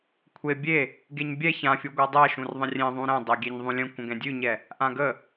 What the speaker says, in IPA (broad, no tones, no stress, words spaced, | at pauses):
kʷʰe bʲe | ɡeɲbʲɛ çãfʲu ɡʷadˤɛʃũr ðˤə̃rʲẽðˤũ ɾɛ̃ dˤɛɡʲɛɲðˤũlʲə̃ kʷə̃ɡɛ̃dʲʉɲɛ | ʔãɡə